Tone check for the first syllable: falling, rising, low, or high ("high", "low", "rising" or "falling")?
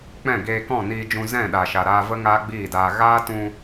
falling